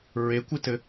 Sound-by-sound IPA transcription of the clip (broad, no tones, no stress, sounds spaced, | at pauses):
ɹ e kʷ ɨ t ɘ